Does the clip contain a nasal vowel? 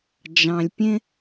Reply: yes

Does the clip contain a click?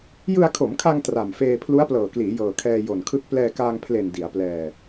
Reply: no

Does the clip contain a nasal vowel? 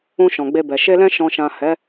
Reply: yes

